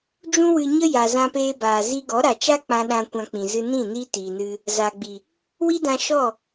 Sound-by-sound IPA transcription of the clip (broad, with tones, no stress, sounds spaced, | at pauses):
d͡ʒ ũ˦ w ɨ˧ ɲ ə˦ j a˨ z ã˧ p eː˧ b aː˨ z i˧ ɡ ɔ˨˦ ɾ a˨ t͡ʃ a˦ k͡p ã˧ ɗ ã˧ kʷ ã˧ k͡p ĩ˨ z ɨ˧ n ĩ˦˨ n iː˦ t iː˨ n ɨ˧ | z a˨ ɡ͡b i˨ | w i˦ d ã˧ ʃ ɔ˦˨